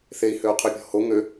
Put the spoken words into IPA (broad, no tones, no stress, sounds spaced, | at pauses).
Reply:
θ e i̯ h ø u̯ qʰ y pʲ ɔ̤ h o ŋ ø